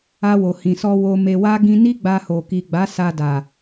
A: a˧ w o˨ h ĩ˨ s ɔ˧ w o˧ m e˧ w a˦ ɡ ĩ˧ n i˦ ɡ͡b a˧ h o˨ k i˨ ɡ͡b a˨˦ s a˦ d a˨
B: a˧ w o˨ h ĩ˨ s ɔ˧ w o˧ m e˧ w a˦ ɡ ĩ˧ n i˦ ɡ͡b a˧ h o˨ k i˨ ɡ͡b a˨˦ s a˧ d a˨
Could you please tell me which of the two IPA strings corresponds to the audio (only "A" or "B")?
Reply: B